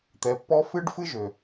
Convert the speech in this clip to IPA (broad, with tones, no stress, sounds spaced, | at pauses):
t̪ ɛ˨ pː ɔ˦ f ɨ˦ ɖ f ɨ˦ ʒ ø˨